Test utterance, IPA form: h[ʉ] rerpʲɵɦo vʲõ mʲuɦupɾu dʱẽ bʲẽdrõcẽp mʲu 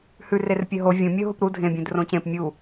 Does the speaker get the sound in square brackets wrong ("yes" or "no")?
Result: no